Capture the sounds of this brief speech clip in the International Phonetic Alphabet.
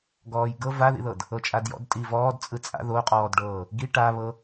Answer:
ɡ ɔː j ɡ ɤ v a ð ḭ ð ɤ d | ɤ t͡ʃʼ a d j ɔ̰ d tʼ i v ɔː d t͡sʼ ɯ t͡sʼ a̰ ð o qʼ ɔː d ɖ ɤː | ɡ i ʈ a β ɤ

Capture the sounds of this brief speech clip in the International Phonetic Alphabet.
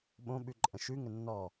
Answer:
ɓ õ ɓ ʉ ǃʼ ə̃ ʃ ʉ ŋ ə nː ɔ

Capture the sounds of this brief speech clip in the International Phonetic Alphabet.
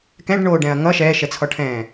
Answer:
k ɛ̃ ɖ ɳ oː ɖ ɛ̃ ɐ̯ ŋ ʌ ʃ ɛː ʃ ɛ t͡sʰ ɔ ʈʰ ɛ̃ː

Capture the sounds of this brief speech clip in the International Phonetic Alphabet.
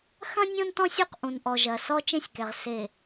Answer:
x ɐ̃˦ nʲ õ˦ n t ɔ̃˦ sʲ u˦˨ q ʔ ũ˨ n ʔ ɔ˨ ʒ ɐ˨ s ɔ˦ t͡ʃ ẽ˦˨ sʲ k ɛ˨ ʁ s e˨

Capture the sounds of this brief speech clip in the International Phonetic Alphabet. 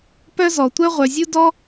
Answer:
p œ˥ z ɔ˩ tʷ œ˥ ʁʷ œ˩ zʲ u˥ d ɔ˥

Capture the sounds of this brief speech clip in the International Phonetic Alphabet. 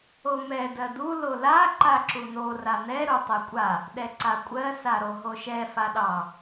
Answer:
o m ɛ d ɜ d u l o l a ǃ a ǁ u n o r a n ɛ ɾ u tˤ ɛ kʷʼ a | ɗ ɛ ǀ a kʷʼ ɜ s a ɾ o ɦ o ʃ ɛ f a ɗ ɑ

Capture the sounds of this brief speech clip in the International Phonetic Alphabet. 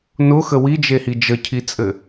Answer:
n ʊ x ə w i d͡ʒ e h i d͡ʒ ə cʰ i t͡sʼ ɘ

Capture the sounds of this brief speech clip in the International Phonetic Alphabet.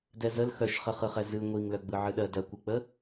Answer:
d ɛ z ə l x œ ʃ χ ə χ ɯ χ ɛ z ɨ ŋʷ i ŋ l œ ɡ͡b ɯ ʕ ɨ ɗ ɜ d ɜ kʷ ɯ k͡p ə

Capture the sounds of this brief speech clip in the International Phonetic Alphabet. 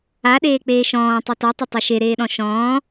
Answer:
a ɗ eː k͡p eː ʃ ɔ̃ː tˤ i t ɔ tˤ e tˤ æ ʃ e ɾ eː ɗ ɔ̃ ʃ ɔ̃ː

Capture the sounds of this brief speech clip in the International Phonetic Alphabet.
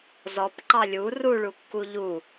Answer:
z ɔ p ǃ ɑ lʲ u r u ɭ u kː u ʎ u

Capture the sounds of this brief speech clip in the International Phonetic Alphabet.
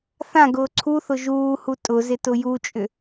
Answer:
θ ã ɡ ʊː ǀʰ u θ ʊ ʒ uː h u tʼ ʊ z ɪ t ʊ j u t͡ʃʼ ʏ

